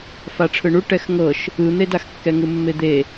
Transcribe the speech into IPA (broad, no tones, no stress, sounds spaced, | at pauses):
f a ʈ͡ʂʰ ɯ ɳ u ʈ ɛ x ŋ ɤ ʃ | ɯ n̪ e d a x kː ɛ ŋ ɯ mː e d̪ e